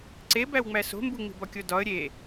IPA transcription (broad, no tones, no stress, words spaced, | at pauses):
ǀebæwŋ͡mæ so̤mbuŋ͡mi̤b ɒkʲodɒə̯ ɾʲe